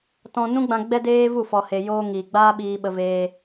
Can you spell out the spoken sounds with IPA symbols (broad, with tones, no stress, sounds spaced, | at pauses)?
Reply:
t ɔ̃˧ n ũ˦ ɡ͡b ã˧ ɡ͡b ɛ˦ d eː˦ v u˦˨ f ɔ˨ h e˨ j oː˧ ŋ iː˨ ɡ͡b aː˦ ɓ iː˧ ɓ ə˧ v eː˧